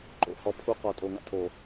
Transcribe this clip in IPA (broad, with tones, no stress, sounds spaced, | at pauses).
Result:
ǃ o̰˨ h ɔ˨ pʰ u˦ q ɔ˨ tʼ o˨ ŋ a̰˦ tʰ o˨